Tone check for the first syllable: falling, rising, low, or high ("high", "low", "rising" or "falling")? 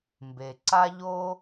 low